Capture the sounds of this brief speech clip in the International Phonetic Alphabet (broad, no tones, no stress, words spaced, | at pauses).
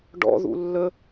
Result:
ɖɔ̰ðṵ lːə